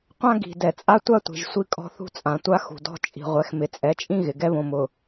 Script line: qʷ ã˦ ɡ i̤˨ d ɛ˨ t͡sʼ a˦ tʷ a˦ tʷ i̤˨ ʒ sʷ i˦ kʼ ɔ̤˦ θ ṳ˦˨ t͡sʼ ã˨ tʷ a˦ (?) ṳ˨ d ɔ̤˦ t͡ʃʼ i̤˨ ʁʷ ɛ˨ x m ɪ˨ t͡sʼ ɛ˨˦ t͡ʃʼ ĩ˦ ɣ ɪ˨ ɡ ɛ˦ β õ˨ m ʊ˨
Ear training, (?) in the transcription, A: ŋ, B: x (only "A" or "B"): B